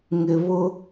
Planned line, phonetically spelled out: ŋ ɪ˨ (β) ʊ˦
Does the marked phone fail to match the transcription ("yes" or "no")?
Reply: no